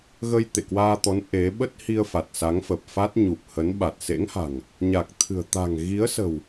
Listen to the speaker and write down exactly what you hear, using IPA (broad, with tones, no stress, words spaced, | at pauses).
ɣə˧jt̪ḛ˧˨kwaː˧t̪ɔ˨˦n ʔe˨˦ ɓə˦˥t̚hi˧ə̯ fa˨˩t̚sa˨˦ŋfə˨˩p̚fa˦˥t̚ ɲu˨˩p̚hə˨˦nɓa˨˩t̚ sḛ˧˥ŋha̤˨˩ŋ | ɲa˨˩k̚t̪ʰɨ̤˨˩ə̯ t̪a̤˨˩ŋɣi˨˦ə̯sə̤˨˩w